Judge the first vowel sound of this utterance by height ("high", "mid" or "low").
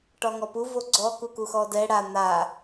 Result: low